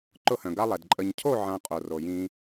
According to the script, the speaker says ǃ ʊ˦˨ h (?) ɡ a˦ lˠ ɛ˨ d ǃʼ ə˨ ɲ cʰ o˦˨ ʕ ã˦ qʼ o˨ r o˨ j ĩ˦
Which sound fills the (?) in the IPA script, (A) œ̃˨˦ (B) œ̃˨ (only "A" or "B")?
B